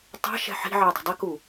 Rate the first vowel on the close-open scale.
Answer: open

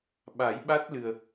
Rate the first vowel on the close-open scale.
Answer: open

